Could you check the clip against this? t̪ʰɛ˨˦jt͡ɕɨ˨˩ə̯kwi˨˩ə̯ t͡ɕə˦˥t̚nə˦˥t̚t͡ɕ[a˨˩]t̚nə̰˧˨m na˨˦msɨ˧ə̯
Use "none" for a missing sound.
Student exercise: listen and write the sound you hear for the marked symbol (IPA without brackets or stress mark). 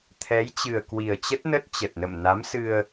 ə˨˩